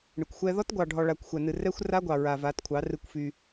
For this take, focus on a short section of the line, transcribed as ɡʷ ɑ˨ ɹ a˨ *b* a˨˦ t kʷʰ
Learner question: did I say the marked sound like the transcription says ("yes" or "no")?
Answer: no